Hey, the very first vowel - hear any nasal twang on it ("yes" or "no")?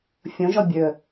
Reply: yes